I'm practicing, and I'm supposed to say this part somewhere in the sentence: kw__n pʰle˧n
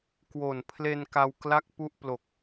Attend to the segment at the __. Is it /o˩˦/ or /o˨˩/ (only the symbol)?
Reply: o˨˩